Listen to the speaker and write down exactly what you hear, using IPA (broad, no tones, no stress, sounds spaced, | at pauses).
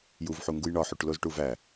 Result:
j u v ħ u ŋ ɡ u j ɳ ɒ ħ u ʈ l o z ʈ u v æ